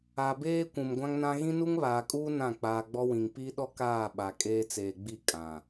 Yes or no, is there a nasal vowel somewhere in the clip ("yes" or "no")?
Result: yes